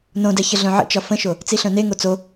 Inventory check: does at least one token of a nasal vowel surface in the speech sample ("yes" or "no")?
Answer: yes